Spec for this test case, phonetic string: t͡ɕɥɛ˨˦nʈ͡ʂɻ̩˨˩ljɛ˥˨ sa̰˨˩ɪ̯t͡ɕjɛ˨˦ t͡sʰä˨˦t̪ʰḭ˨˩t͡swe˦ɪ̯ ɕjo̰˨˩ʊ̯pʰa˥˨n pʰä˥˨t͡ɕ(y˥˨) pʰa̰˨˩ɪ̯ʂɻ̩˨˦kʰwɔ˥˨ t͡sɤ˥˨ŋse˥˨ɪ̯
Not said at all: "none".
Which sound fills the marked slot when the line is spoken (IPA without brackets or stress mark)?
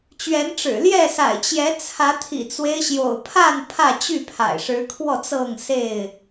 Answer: y˥˨